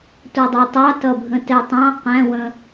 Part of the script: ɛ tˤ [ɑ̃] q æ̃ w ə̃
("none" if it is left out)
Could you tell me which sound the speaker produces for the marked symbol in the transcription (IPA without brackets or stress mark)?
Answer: ɑ̃